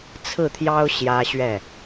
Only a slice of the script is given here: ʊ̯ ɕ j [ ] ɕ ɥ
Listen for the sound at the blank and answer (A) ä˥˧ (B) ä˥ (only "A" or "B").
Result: B